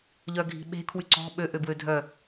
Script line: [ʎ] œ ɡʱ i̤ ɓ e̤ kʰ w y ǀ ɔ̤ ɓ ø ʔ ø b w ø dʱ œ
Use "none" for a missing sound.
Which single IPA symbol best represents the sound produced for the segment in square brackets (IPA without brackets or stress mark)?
ʎ